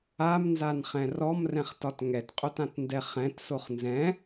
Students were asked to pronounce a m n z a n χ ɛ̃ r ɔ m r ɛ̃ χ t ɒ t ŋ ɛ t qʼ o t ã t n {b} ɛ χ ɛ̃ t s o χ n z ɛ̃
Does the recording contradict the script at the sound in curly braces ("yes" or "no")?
yes